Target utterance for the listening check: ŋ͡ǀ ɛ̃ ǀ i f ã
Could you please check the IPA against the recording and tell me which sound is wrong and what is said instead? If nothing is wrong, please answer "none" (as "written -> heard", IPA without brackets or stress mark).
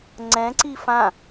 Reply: none